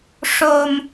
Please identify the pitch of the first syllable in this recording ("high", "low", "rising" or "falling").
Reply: low